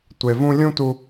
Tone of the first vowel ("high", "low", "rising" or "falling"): low